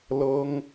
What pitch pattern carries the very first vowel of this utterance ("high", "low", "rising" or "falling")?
high